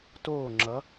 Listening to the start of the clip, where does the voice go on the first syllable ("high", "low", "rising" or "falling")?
falling